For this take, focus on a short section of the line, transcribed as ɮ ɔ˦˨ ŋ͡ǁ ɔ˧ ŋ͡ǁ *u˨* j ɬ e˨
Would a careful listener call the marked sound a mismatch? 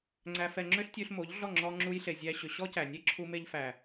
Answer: yes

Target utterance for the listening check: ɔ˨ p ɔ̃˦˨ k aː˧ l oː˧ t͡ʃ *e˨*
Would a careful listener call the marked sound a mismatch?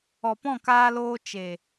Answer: no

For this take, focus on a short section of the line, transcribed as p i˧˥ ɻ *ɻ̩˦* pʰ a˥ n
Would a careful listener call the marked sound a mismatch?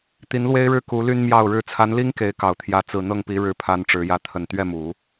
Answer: yes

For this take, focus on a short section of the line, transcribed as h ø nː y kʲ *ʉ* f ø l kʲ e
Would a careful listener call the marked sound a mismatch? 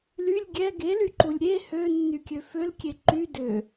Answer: yes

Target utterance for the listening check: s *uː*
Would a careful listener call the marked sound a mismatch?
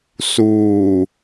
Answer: no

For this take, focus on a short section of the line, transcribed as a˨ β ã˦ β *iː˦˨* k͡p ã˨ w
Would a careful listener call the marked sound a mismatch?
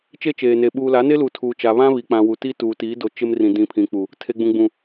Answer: yes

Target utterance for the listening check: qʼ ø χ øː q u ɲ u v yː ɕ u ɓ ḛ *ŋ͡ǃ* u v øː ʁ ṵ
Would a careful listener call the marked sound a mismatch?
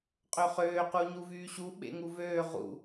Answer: yes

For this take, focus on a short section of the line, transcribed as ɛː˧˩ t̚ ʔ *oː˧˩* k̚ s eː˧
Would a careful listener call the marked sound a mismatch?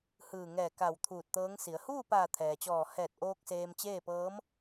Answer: yes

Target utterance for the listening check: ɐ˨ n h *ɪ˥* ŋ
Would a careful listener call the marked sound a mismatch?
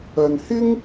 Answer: no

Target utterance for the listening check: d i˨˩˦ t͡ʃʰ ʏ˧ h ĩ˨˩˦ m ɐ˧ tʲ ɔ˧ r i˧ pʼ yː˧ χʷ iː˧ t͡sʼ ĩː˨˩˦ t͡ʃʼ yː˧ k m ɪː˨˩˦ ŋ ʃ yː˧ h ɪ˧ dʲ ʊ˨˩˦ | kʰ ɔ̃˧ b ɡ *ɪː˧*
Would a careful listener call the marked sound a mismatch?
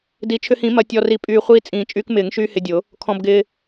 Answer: no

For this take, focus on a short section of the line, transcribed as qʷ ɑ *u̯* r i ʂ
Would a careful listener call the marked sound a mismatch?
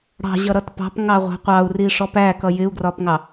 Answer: no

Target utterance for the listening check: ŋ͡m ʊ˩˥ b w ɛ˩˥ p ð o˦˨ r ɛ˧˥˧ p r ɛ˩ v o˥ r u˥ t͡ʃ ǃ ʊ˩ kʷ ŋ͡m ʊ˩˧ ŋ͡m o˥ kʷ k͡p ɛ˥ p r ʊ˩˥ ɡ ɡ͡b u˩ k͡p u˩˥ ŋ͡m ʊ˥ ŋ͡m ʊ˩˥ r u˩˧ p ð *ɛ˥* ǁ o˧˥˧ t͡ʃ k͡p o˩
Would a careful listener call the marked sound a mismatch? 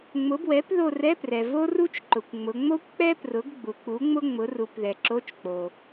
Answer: yes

